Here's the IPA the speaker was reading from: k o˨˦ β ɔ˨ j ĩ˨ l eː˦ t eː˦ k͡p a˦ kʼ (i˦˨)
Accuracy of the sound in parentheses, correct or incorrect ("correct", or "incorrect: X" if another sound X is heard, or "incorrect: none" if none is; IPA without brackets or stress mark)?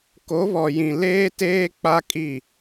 correct